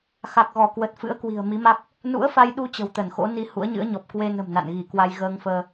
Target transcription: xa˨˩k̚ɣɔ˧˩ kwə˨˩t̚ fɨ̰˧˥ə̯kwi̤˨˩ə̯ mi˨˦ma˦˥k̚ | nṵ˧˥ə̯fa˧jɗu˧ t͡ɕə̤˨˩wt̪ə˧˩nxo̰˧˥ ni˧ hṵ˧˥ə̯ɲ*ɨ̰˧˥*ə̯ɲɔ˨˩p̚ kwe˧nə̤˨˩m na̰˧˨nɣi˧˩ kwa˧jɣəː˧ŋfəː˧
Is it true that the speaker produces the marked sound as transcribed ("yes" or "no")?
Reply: yes